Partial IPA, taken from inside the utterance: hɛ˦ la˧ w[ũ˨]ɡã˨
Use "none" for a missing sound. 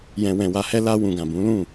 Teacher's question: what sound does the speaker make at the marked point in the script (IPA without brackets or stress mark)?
ũ˨